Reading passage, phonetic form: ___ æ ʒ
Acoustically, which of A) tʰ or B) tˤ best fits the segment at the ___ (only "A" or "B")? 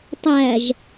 B